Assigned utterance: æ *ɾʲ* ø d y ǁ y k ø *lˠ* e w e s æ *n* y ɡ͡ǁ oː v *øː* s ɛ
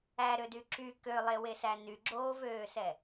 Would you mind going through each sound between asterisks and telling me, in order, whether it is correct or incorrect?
incorrect: ɾ, correct, correct, correct

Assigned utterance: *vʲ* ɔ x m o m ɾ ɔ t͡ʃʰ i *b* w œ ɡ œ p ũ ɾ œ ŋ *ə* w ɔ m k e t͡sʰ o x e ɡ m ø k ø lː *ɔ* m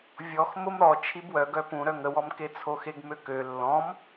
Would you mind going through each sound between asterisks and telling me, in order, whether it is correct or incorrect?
correct, correct, correct, incorrect: ɔ̃

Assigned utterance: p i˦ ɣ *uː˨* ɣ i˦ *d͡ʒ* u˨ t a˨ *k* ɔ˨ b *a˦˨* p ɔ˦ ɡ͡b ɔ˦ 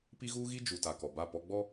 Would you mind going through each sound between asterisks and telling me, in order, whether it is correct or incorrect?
incorrect: uː˦, correct, correct, correct

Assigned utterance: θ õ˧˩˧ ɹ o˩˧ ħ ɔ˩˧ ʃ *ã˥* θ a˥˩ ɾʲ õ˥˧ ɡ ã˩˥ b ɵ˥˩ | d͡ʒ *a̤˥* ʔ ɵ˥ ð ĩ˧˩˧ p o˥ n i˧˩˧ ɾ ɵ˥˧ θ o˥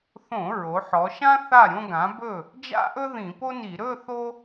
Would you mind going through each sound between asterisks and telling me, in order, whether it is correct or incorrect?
correct, incorrect: a̰˥

